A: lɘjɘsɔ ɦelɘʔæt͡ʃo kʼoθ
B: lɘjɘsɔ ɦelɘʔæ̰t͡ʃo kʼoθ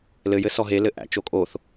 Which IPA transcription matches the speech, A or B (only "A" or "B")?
B